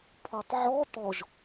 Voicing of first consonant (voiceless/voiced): voiceless